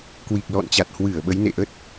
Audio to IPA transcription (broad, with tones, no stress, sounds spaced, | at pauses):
k w i˨˩ k̚ l ɔ̰˧˨ n t͡ɕ a˨˩ t̚ h w ɨ˧˩ ə̯ ɓ ə˨˦ j n ḛ˧˨ ʔ ə˦˥ t̚